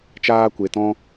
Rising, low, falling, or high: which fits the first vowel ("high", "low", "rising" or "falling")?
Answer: high